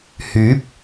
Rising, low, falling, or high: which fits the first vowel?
rising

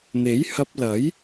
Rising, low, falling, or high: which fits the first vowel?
rising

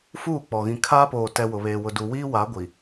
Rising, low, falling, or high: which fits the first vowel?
falling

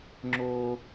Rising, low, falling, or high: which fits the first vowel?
high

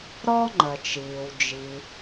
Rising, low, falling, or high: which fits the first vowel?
high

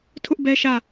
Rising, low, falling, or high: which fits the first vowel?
high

